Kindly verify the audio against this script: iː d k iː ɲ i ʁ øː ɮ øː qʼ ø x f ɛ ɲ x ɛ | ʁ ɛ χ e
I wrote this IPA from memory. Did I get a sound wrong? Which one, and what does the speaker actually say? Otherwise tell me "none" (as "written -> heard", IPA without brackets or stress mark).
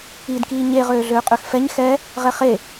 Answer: i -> e